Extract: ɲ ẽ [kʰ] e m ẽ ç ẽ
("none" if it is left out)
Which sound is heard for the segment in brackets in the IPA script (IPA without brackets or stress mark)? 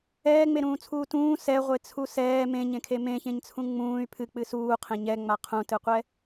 kʰ